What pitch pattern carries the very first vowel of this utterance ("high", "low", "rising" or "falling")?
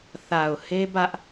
low